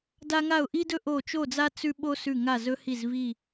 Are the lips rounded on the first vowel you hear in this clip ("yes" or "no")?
no